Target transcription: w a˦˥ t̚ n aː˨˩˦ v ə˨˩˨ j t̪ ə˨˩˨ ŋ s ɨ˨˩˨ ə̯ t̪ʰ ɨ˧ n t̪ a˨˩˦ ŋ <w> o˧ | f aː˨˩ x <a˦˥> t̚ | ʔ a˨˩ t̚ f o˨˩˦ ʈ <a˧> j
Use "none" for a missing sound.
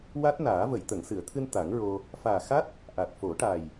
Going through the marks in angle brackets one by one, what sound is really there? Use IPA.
ɹ, a˦˥, a˨˩

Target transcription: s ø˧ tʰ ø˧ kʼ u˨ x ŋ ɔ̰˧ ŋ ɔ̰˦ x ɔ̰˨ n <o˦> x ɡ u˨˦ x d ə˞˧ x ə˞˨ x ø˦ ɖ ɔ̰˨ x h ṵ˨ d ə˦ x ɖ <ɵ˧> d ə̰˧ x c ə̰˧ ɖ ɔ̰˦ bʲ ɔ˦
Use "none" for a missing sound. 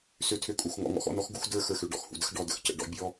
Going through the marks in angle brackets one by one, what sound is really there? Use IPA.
ɔ˦, ɔ˧

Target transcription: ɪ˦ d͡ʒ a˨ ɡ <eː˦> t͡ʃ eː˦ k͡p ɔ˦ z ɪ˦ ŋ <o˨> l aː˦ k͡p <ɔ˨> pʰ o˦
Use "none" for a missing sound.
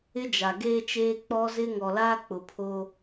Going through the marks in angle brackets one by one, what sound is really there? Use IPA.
eː˦, ɔ˨, ʊ˨

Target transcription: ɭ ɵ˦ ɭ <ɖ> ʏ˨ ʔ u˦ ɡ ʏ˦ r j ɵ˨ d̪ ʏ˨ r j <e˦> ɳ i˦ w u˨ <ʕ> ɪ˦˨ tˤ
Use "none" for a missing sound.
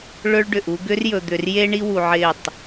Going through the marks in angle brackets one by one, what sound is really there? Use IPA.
ɖ, e˦, ʕ

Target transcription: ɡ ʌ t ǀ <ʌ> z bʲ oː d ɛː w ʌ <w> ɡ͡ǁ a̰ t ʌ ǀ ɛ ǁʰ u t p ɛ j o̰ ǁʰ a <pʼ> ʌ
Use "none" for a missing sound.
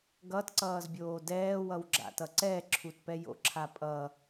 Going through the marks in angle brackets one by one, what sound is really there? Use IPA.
ʌː, w, pʼ

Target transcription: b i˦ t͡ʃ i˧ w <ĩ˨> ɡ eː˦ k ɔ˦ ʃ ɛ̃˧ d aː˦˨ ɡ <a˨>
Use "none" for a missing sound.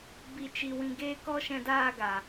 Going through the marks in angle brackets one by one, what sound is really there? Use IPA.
ĩ˧, a˨

